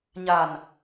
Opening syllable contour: low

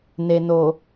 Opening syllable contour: low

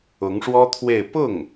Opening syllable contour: rising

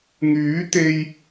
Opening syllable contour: rising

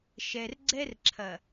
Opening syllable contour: low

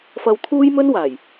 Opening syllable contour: high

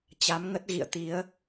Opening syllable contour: rising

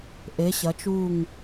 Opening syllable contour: rising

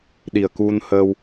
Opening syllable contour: low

